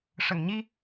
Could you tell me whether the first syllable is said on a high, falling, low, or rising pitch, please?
low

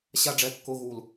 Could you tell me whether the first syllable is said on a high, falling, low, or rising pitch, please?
high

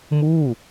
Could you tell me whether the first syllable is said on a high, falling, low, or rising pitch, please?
falling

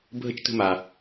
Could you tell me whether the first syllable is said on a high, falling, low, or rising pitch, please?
high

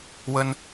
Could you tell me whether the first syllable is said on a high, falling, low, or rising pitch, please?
high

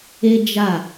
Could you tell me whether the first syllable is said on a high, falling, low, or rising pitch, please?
high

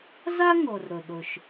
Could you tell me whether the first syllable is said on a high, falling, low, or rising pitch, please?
high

